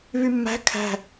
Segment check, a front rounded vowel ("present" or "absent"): present